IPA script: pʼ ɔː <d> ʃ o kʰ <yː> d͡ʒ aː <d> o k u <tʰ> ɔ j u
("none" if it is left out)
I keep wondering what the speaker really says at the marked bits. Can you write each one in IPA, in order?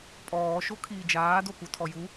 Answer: none, iː, d, tʰ

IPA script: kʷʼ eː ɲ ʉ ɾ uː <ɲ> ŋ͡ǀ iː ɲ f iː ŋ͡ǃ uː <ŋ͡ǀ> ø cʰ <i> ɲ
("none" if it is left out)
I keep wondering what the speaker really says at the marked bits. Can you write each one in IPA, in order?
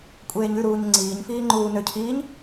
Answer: ɲ, n, iː

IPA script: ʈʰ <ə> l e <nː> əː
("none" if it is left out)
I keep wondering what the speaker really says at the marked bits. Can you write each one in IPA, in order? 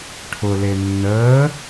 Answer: ʊ, nː

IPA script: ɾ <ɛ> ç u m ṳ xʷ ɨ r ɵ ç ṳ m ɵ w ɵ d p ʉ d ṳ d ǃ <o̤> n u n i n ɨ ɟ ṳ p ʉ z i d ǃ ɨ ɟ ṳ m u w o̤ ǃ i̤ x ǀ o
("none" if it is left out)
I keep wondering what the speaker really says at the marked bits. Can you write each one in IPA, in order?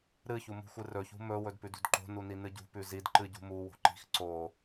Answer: ɨ, o̤

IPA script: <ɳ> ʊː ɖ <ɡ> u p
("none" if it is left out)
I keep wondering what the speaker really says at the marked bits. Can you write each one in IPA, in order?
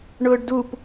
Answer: ɳ, d

